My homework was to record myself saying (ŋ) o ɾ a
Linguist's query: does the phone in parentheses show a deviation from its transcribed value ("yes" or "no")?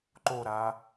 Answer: yes